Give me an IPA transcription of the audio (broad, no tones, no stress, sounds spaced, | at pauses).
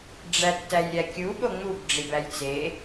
ɖ͡ʐ æ tː æ j ɾʲ æ kʲ u ɓ o ŋ͡m u b ɖ͡ʐ i b æ j t͡s e